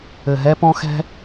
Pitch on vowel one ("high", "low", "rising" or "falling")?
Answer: low